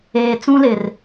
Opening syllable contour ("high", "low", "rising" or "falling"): low